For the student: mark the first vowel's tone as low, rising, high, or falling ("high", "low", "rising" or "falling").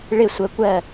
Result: falling